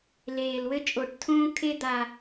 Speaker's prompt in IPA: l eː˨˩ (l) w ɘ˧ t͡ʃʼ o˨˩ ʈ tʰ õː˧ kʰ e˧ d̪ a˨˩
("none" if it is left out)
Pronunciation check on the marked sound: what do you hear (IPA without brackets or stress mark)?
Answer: l